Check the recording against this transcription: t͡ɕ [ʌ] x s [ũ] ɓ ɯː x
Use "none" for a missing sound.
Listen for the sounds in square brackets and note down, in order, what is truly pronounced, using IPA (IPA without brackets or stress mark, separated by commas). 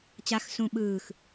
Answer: a, ũ